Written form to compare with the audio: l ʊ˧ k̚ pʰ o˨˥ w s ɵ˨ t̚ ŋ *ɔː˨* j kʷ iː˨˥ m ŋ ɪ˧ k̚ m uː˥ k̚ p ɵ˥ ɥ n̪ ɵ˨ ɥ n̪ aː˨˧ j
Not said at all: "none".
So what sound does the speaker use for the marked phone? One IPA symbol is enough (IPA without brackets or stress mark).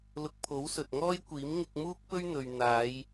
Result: ɔː˥